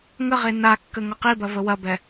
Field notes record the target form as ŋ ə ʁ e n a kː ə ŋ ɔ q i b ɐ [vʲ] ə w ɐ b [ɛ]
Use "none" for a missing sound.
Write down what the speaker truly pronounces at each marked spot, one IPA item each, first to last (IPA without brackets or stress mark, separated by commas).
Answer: v, ɛ